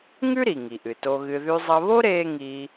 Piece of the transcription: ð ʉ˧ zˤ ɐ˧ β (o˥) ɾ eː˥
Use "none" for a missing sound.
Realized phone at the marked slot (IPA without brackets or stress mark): o˥